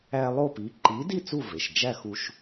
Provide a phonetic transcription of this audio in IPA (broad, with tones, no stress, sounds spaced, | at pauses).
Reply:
æ˦ lˠ o˥˨ p i˨˥ ǃ i˨˥ d i˥˨ t͡s u˥˨ v e˩˧˩ ʃ d͡ʒ æ˥˨ x u˦ ʃ